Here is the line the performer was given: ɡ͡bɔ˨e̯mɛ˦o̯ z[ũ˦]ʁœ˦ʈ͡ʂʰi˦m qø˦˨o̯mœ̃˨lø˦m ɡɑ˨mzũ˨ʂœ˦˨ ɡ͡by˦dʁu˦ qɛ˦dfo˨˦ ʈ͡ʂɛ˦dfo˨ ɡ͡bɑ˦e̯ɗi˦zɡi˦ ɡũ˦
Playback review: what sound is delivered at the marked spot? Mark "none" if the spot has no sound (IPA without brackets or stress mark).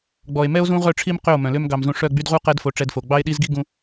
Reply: ũ˦